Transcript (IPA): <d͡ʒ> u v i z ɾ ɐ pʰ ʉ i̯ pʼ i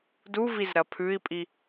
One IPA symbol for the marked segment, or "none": d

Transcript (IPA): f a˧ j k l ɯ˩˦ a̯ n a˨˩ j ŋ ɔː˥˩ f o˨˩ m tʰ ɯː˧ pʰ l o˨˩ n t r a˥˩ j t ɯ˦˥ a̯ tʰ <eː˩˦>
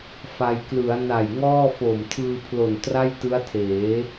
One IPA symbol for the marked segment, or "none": eː˩˦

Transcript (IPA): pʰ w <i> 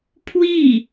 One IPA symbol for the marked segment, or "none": i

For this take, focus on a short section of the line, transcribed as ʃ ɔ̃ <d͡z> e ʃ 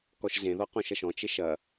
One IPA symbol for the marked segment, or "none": t͡ʃ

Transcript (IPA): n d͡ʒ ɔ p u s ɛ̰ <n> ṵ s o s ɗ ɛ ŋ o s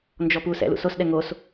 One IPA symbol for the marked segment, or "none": l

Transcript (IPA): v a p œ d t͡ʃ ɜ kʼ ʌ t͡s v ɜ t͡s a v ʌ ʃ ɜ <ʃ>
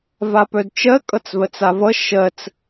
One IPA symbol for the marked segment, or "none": t͡s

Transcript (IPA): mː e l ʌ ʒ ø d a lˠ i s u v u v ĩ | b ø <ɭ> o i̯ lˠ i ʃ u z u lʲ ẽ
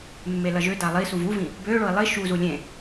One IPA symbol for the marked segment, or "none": ɭ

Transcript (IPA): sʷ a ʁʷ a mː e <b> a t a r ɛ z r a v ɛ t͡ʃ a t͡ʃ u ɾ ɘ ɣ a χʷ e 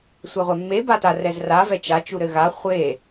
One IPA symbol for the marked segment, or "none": b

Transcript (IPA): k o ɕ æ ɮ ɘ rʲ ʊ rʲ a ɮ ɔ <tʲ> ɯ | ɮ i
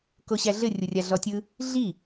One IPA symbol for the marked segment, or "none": tʲ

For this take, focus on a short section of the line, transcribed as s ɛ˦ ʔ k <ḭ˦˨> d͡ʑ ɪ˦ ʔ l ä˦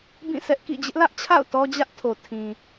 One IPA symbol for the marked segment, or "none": ḭ˦˨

